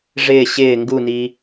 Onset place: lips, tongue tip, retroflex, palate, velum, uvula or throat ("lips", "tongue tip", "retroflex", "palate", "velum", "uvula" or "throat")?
retroflex